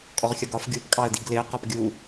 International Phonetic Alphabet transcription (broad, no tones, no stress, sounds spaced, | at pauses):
kʼ ɔ ʁ xʲ ʌ ɡ ɒ f ɡʲ u p kʼ ɑ ə̯ d i ɡ l ɪ ə̯ q ɒ p ɡʲ u